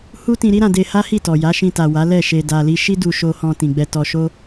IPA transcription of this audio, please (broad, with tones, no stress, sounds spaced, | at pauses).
h u˦ t ĩ˧ ɾ i˦ ɾ ã˧ d e˧ h a˦ h i˦˨ t ɔ˨ j a˨˦ ʃ ĩ˧ t a˨ w a˨˦ l ɛ˦˨ ʃ e˧ d a˧ l i˦ ʃ i˦ d u˧ ʃ o˧ h ɔ̃˧ t ĩ˨ ɡ͡b ɛ˧ t ɔ˧ ʃ o˦